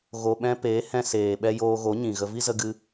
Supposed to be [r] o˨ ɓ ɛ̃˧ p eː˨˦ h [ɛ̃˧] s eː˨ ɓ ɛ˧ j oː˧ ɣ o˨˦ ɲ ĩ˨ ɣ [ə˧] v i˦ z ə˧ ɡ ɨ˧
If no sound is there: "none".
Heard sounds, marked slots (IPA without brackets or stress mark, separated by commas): ɣ, ɛ̃˨, ə˧